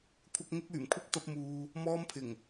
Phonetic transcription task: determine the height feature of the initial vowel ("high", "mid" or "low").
low